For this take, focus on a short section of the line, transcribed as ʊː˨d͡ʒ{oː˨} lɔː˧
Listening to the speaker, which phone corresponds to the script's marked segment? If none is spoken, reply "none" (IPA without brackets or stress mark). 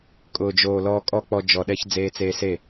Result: oː˨